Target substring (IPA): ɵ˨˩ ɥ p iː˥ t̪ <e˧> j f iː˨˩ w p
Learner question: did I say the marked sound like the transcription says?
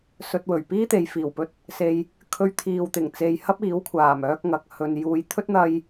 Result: no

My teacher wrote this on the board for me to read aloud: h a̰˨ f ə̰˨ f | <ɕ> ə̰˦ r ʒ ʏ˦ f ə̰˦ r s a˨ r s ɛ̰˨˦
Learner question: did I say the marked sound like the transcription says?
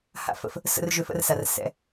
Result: no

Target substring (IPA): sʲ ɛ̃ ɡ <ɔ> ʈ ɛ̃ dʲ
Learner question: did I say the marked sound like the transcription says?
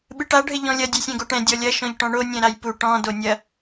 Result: no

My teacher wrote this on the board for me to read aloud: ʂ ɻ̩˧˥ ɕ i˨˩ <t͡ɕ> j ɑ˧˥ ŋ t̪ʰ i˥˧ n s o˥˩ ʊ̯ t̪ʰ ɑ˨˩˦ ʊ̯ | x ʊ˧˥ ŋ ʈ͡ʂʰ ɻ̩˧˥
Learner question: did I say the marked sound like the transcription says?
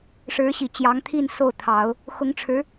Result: yes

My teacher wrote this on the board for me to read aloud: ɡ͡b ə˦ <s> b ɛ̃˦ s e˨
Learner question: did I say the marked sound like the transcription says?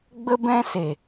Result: no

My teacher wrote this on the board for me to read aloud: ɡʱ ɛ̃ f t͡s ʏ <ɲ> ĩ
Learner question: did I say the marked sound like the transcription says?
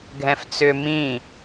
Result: no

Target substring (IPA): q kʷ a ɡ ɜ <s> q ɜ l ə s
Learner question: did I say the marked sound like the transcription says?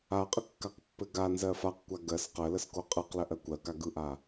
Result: yes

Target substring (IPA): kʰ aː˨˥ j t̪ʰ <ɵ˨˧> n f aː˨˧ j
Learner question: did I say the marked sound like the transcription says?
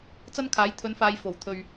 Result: no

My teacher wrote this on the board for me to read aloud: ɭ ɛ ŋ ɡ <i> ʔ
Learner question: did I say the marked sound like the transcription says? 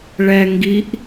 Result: yes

